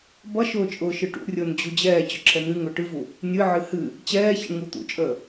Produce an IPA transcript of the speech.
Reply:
b ʌ ʃ ʊː t͡ʃʼ ʊː ʃ ɨ ʈ ṵ rʲ ʊː n d͡ʑ u d͡ʑ ɛː t͡ɕ ʊ ǁʰ ɛ n̪ ɨ ŋ ʊː ʈ ɨ v u | nʲ ɨ ʕ ɨ h ɨ | t͡ɕ ɛː ç ə̰ ɳ ŋ u t̪ ṵ t͡ʃʼ əː

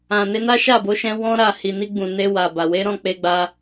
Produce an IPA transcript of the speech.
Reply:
ã˨ n e˧ n a˦ ʃ a˦˨ b o˨˦ ʃ ɛ̃˧ w ɔ̃˦ ɾ a˦˨ h i˨ n i˧ ɡ͡b ũ˨ n e˧ w a˨ b a˨ w e˨˦ ɾ ɔ̃˦˨ k͡p e˧ ɡ͡b a˧

